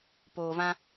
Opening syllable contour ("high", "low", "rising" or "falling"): low